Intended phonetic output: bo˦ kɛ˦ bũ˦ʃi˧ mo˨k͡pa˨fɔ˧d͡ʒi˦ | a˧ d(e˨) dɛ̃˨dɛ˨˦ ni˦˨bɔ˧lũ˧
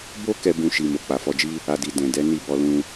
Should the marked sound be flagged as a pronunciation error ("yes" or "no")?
yes